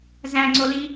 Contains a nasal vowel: yes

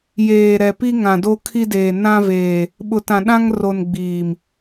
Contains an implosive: yes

